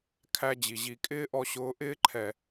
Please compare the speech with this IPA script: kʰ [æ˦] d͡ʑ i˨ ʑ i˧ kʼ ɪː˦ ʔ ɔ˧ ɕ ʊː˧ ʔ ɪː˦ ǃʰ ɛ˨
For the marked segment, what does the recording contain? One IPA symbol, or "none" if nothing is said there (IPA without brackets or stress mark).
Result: æ˦